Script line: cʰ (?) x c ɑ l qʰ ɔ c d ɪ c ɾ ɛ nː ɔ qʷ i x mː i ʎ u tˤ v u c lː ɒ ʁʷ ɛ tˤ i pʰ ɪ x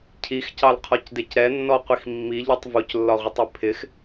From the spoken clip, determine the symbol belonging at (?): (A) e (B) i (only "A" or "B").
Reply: B